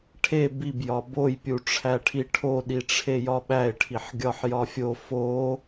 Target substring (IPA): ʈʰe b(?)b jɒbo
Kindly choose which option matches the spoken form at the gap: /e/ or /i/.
i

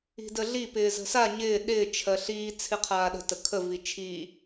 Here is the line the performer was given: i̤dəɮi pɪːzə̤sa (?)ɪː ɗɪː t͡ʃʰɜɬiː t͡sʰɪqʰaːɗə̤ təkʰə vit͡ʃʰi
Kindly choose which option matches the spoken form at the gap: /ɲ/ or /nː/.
ɲ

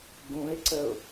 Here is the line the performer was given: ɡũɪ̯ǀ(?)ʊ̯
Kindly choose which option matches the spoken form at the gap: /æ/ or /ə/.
ə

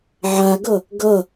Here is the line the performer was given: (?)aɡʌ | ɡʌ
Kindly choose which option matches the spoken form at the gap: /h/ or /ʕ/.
ʕ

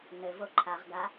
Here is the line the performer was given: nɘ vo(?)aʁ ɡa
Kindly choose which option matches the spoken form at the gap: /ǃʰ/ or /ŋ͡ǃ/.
ǃʰ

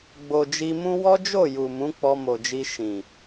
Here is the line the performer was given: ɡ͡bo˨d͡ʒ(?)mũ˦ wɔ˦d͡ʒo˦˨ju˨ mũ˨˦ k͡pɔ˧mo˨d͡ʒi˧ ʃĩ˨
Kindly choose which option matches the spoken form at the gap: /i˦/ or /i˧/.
i˧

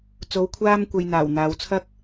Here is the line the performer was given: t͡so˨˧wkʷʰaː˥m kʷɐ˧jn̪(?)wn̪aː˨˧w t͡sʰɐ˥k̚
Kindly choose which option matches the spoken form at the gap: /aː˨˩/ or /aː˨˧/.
aː˨˩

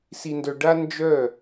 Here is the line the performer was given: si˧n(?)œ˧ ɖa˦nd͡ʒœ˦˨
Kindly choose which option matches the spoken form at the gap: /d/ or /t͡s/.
d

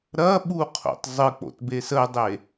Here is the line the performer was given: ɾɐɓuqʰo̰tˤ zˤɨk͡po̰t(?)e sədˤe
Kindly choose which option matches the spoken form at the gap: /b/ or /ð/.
b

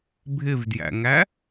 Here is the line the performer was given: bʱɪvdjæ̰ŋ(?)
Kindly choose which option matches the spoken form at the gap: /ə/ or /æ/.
æ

